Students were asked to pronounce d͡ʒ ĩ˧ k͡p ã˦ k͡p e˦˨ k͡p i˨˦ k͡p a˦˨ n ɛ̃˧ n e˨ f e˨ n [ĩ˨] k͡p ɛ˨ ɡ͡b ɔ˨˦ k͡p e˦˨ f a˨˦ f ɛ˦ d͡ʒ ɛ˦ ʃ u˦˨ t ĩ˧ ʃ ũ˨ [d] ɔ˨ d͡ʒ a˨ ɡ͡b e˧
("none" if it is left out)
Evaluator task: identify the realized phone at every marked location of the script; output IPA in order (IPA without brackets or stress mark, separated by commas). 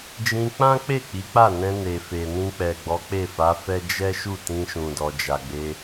ĩ˧, d